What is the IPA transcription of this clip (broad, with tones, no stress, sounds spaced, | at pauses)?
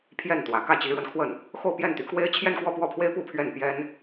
pʰ j ɛ˥˩ n t̪ w ä˨˩ k ä˥˩ t͡ɕ i˧˥ ɻ w ə˧ n kʰ w ə˥˩ n | x o˥˧ ʊ̯ p j ɛ˥˩ n t̪ y˧˥ k w e˥ ɪ̯ t͡ɕʰ j ɛ˥˧ n k w ɔ˥˧ p w ɔ˥˩ pʰ w e˥ ɪ̯ p u˥˧ pʰ ɥ ɛ˥˩ n p j ɛ˥ n